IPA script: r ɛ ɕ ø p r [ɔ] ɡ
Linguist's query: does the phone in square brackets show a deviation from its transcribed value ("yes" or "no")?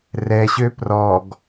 no